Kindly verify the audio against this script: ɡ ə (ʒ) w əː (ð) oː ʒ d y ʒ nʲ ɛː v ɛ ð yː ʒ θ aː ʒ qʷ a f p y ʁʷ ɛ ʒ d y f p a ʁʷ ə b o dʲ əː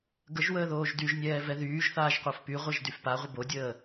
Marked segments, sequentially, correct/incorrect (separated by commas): correct, correct